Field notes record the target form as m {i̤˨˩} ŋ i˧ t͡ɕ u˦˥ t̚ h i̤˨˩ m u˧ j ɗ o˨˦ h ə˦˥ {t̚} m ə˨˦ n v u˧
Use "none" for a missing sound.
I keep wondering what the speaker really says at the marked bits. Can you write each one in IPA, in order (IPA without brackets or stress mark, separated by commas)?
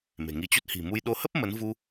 e̤˨˩, p̚